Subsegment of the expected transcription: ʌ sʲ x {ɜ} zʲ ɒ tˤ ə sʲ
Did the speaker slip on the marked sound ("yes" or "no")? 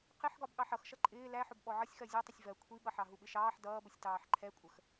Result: no